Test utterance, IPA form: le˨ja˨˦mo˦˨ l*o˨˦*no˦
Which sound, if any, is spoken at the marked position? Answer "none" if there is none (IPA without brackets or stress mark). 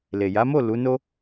u˨˦